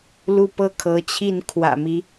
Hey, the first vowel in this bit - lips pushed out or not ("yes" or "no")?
yes